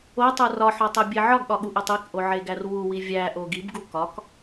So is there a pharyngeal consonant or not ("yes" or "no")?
yes